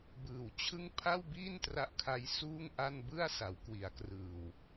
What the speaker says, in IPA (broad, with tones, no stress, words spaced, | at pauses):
bɯː˨˩wt͡ɕʰɯ˥˩ŋ pʰa˥˩wbiː˥˩n tra˦˥ʔkʰa˦˥j suː˥˩ŋʔa˥˩n bɯ˥˩a̯sa˩˦wkwi˩˦a̯krɯː˨˩w